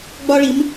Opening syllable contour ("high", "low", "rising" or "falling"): high